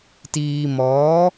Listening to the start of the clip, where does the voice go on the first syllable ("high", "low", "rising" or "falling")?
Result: low